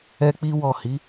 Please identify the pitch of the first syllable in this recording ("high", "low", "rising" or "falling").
high